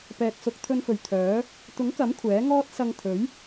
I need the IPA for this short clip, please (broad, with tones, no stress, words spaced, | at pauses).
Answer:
pɛː˨k̚sʊ˨˥k̚ t̪ʰɵ˨nfɵ˨˩ɥ t̪ʰœː˨˥ | t̪ʊ˨˥ŋkɐ˨˥m kʷʰɛː˨˥ŋɔː˥t̚ sɐ˧ŋt̪ʰɵ˨˥ɥ